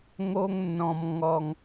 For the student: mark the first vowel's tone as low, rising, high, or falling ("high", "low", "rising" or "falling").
high